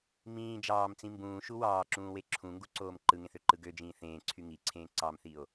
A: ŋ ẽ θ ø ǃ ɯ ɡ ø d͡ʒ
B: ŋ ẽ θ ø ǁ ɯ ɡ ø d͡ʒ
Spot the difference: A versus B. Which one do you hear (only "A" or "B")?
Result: A